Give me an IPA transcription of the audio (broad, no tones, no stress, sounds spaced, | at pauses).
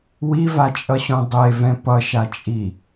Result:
w i v a t͡ʃʼ ʌ ɕ õ dˤ e v ɛ̃ p ʌ ʃ a t͡ʃʼ i